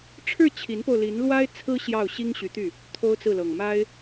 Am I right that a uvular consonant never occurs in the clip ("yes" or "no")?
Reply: yes